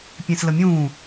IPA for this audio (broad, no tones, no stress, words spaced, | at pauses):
pʲẽsləmʲũː